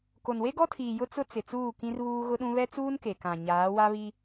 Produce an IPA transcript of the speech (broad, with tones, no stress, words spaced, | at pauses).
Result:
ko˨nwe˦ɡɔ˦tʰiː˨ jʊ˦t͡sʊ˦ t͡sɪ˨t͡suː˦˨ kĩ˦r βuː˦ɣʊ˦ɗũ˦ βɛ˦t͡suː˦n ke˨kã˨ ɲaː˨˦wa˦βi˦